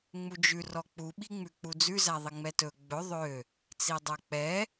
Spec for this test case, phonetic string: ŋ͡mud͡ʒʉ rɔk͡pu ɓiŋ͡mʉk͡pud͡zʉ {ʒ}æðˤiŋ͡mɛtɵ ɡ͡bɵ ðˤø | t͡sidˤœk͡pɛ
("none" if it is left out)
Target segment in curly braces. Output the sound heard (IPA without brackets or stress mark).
z